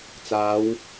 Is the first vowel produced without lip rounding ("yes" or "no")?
yes